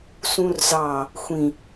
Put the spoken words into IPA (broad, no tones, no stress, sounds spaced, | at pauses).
s ũ r z ɑ | xʷ ĩ